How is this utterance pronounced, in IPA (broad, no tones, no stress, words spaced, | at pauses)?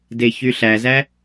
deçyɬæzæ